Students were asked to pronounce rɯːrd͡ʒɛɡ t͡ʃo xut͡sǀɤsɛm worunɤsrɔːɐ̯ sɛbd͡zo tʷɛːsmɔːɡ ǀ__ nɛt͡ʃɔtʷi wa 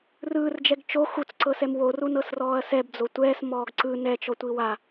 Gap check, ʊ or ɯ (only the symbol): ɯ